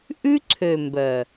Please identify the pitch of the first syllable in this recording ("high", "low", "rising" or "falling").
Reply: high